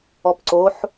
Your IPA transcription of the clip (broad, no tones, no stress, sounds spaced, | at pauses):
ɔ p ǀ o ħ